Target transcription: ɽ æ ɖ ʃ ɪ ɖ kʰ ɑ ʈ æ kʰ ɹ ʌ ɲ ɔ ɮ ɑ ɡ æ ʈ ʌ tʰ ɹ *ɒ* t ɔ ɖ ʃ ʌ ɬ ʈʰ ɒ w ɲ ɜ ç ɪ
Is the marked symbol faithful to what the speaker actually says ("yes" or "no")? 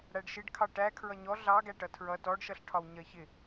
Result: no